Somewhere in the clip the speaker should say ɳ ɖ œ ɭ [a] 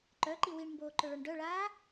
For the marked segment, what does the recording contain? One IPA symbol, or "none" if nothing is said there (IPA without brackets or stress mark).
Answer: aː